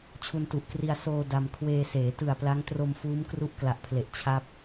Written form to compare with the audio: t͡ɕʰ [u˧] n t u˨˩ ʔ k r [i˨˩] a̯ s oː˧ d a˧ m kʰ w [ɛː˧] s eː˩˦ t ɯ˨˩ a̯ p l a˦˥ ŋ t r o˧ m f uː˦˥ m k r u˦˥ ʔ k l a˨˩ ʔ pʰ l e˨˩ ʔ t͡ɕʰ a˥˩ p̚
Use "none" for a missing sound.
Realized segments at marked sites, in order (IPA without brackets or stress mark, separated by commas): u˧, i˧, eː˧